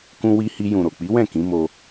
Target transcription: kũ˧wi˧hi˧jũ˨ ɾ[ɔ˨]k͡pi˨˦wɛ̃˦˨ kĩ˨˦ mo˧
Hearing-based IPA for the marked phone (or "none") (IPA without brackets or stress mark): o˨